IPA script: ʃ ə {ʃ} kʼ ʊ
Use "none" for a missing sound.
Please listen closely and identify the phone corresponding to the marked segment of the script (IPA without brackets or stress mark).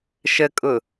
none